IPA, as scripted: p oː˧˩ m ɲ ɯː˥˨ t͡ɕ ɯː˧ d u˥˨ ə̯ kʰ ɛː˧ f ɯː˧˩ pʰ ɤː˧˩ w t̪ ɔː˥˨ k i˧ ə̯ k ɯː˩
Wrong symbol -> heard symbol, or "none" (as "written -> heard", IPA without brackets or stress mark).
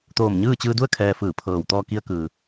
p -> t̪